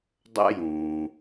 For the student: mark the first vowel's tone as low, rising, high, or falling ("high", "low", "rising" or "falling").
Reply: high